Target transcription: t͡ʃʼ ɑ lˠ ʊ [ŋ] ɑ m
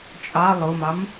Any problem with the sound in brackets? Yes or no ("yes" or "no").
yes